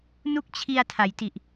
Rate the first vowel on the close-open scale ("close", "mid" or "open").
close